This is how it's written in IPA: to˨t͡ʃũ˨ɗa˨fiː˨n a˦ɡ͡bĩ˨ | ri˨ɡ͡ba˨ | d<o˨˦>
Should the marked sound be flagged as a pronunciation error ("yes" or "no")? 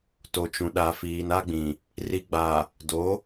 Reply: no